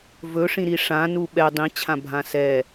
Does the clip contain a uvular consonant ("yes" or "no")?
no